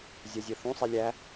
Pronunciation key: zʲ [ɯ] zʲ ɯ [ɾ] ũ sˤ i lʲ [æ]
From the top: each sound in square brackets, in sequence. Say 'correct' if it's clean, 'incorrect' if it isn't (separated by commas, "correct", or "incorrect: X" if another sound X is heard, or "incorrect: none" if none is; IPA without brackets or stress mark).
incorrect: ɤ, incorrect: θ, correct